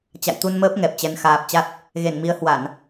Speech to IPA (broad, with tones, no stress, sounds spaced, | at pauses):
t͡ɕ a̰˧˨ j t̪ u˧ n m əː˦˥ p̚ ŋ ɛ˨˩ p̚ t͡ɕ ɛ˨˦ n x aː˨˩ p̚ t͡ɕ a˦˥ t̚ | ɣ e˧˩ n m i˨˦ ə̯ h w a˧˩˨ n